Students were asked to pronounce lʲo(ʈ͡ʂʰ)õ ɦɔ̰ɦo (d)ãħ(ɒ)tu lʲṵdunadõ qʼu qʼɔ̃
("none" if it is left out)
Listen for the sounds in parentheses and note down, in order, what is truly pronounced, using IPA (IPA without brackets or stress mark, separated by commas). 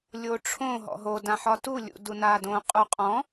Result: ʈ͡ʂʰ, d, ɒ